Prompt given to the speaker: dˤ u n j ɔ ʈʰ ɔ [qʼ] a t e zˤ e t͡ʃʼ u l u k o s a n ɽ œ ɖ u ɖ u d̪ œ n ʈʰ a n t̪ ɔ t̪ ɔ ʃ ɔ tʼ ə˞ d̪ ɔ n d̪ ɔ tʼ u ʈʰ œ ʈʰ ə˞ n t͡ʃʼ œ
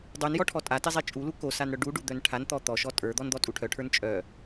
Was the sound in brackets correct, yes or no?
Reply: no